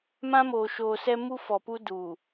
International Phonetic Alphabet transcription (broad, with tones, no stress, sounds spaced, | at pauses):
m ã˦ m oː˨ ʃ oː˨ s ɛ˦ m u˦ f ɔ˨ p u˦ d uː˨